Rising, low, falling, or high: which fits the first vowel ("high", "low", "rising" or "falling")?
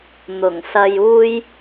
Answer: low